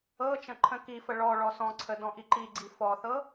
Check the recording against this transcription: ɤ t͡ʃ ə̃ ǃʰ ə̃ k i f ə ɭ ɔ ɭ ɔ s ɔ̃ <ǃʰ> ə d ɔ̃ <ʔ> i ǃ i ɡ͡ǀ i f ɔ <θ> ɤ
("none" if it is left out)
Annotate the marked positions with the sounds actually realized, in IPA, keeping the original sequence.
ǀʰ, ʔ, θ

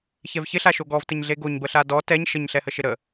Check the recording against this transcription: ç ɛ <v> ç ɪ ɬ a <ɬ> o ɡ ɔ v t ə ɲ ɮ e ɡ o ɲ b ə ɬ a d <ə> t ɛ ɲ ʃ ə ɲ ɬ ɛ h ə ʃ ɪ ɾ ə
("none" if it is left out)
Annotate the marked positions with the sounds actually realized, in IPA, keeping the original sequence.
v, ʃ, ɔ

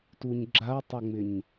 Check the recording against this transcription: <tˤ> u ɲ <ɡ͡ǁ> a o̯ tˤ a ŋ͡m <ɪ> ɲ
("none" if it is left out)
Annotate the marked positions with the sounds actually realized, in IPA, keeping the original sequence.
t, ɡ͡ǁ, ɪ

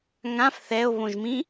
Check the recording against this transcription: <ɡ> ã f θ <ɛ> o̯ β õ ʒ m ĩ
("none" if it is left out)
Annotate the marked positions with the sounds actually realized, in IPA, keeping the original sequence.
ŋ, ɛ

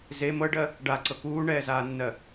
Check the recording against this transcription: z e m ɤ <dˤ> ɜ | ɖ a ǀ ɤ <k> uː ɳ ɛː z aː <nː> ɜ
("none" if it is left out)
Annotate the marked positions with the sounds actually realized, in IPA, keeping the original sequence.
ɖ, k, nː

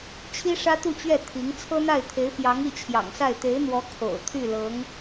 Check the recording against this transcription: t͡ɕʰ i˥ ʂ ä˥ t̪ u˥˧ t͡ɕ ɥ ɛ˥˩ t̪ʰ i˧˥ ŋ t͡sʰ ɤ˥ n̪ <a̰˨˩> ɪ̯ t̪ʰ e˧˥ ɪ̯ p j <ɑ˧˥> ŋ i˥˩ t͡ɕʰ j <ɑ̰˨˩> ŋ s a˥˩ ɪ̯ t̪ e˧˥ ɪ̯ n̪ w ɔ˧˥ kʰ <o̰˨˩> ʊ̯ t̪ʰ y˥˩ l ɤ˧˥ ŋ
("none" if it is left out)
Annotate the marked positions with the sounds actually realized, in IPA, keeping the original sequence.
a˥˩, ɑ˧˥, ɑ̰˨˩, o̰˨˩

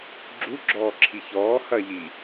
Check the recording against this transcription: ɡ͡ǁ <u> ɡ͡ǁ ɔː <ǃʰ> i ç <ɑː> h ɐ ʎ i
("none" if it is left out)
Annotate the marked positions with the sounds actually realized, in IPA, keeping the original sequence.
u, ǁʰ, ɔː

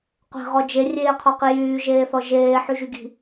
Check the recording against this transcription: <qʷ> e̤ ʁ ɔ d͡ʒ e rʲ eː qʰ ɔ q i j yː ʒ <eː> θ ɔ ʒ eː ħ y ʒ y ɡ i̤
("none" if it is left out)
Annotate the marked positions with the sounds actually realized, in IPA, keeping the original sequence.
qʷ, eː

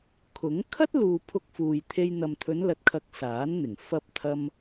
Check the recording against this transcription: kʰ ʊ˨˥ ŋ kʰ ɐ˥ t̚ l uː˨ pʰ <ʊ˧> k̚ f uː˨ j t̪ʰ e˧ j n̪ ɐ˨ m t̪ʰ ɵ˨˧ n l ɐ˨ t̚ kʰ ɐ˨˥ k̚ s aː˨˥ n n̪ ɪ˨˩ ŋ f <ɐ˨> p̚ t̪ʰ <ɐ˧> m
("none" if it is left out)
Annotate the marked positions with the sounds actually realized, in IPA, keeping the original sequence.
ʊ˧, ɐ˧, ɐ˧

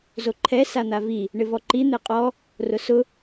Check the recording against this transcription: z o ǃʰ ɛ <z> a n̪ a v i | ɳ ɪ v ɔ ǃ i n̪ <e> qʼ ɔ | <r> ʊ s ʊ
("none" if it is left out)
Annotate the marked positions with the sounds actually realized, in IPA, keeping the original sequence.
s, e, r

